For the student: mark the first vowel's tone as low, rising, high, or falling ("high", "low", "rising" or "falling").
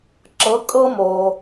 rising